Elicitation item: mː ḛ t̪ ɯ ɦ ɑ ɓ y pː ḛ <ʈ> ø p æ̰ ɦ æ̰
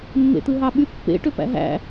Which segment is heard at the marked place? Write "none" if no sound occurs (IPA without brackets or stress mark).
ʈ